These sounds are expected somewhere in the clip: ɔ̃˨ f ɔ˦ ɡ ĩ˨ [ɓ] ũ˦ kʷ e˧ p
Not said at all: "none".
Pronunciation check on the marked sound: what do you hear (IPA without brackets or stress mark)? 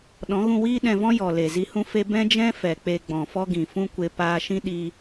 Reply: f